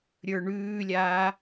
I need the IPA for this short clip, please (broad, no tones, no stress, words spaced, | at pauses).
ɾʲə˞ɳʉːlʲaː